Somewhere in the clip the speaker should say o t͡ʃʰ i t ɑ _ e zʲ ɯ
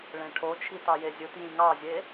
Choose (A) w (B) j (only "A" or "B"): B